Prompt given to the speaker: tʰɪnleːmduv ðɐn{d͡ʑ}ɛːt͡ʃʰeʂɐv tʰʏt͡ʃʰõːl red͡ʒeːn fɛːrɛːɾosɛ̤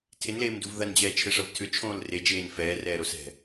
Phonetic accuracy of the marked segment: correct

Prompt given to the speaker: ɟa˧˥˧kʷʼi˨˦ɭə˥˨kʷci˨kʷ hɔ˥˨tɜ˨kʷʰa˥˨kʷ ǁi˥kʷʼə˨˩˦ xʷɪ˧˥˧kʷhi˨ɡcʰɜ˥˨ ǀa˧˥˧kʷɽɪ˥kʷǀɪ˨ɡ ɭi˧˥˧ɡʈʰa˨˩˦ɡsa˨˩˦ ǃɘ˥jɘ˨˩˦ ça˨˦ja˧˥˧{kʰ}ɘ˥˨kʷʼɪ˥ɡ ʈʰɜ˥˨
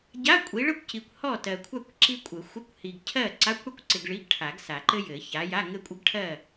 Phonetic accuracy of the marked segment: incorrect: ŋ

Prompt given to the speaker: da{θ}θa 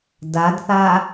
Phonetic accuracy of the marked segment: incorrect: d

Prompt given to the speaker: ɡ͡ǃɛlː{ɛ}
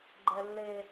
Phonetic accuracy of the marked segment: incorrect: e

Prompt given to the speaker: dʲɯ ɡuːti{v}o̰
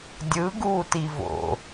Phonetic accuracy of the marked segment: correct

